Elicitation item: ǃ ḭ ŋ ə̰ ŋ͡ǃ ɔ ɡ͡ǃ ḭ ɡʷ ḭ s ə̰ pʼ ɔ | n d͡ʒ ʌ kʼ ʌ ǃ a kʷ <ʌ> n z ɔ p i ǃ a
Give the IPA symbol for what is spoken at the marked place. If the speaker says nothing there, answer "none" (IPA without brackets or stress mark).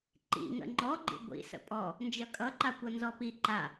ʌ